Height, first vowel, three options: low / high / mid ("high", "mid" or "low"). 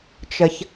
mid